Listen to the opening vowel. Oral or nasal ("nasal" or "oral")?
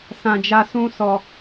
nasal